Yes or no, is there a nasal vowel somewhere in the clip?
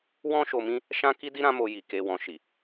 yes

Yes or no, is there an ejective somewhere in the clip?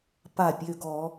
no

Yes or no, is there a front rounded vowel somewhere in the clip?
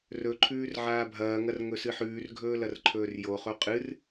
no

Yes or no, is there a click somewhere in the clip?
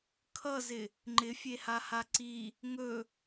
yes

